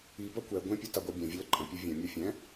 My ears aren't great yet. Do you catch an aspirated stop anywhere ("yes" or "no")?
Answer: no